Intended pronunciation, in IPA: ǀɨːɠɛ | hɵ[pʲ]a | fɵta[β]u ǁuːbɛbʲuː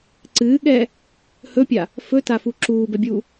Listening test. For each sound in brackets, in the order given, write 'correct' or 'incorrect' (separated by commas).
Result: correct, incorrect